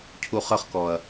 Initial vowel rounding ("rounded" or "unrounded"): rounded